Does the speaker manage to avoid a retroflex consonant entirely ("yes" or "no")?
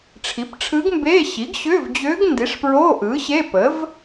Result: no